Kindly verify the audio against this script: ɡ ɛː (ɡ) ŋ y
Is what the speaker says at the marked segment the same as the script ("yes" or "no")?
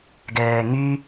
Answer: no